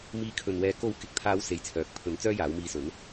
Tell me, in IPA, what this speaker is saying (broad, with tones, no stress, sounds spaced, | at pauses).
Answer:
m iː˨˧ kʰ ɵ˨ n w ɛː˨˧ k o˨˥ w k ɪ˨ k̚ t̪ʰ aː˨˧ w s e˧ j t͡sʰ œː˨˥ k̚ pʰ ɵ˨˥ n t͡s œː˥ j aː˨˥ w m iː˧ s ɵ˨˥ n